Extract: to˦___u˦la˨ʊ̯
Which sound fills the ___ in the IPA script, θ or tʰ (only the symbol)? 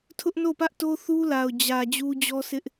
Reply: θ